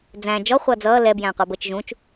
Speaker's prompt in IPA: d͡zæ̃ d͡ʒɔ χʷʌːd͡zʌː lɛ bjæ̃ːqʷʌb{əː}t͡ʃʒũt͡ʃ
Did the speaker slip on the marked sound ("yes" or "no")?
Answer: no